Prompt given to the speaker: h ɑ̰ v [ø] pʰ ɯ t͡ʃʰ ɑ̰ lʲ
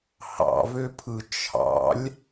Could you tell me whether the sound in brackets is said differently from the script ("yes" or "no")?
no